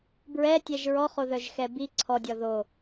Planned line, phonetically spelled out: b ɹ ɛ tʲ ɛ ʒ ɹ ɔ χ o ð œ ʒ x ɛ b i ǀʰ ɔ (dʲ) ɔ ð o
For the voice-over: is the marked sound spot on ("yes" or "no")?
yes